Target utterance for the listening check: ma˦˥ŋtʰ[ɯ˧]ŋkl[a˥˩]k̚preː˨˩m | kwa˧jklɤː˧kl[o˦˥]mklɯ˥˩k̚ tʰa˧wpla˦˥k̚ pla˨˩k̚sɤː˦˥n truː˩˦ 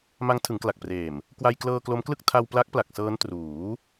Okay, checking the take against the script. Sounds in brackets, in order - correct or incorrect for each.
incorrect, incorrect, correct

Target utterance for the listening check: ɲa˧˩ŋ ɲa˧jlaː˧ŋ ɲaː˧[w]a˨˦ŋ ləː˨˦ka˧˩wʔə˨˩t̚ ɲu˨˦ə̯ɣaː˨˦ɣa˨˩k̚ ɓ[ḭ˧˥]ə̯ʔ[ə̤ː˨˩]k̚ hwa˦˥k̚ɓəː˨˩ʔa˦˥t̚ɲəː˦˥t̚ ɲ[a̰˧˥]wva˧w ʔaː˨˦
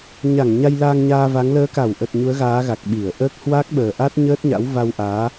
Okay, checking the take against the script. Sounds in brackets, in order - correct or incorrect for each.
incorrect, incorrect, incorrect, correct

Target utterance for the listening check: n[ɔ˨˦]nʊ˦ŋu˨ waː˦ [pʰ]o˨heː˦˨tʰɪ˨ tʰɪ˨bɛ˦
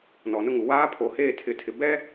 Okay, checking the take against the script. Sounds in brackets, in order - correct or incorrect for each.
incorrect, correct

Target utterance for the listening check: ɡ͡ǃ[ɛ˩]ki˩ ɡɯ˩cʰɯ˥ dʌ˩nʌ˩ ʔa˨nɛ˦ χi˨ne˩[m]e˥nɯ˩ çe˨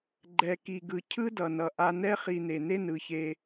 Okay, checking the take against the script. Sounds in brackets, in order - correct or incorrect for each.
correct, incorrect

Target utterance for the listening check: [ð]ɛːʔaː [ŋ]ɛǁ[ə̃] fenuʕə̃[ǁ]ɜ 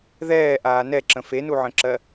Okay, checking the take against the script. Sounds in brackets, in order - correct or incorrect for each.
correct, incorrect, correct, correct

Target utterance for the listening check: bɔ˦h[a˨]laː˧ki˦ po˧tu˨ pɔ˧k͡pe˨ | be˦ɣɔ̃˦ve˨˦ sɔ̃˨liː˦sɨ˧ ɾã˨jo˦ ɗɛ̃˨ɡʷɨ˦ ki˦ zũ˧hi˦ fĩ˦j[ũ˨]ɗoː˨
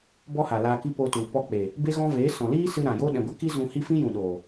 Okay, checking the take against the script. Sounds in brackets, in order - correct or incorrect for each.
correct, correct

